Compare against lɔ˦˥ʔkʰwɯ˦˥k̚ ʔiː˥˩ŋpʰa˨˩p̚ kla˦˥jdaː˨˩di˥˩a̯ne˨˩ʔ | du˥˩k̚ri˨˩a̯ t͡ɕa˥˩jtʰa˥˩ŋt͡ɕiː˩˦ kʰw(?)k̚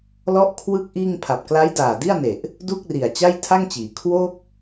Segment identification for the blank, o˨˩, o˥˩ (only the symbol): o˥˩